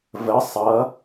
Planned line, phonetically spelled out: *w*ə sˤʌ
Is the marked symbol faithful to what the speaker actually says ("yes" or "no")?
no